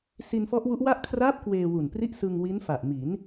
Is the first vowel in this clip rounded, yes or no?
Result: no